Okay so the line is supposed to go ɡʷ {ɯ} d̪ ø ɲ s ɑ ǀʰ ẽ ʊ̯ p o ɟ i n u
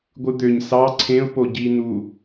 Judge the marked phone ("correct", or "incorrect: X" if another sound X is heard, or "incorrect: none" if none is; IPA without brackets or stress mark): correct